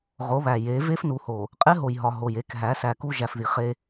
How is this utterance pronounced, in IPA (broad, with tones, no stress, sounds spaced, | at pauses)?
ʁ o˨˦ β æ˨ j e˨˦ v e˦ f n u˨ h o˨ | qʼ e˦ ɦ o˨ j ɦ ɒ˨ ɦ o˨ j e˨˦ k ɦ æ˨˦ s æ˨ k u˦ ʒ æ˨ f ð i˨ χ e˦